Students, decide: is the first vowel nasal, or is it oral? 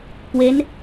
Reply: oral